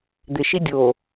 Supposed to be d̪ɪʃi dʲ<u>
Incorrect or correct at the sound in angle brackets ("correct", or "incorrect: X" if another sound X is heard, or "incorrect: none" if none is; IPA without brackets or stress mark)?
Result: incorrect: o